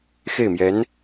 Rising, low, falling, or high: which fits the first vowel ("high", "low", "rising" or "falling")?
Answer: falling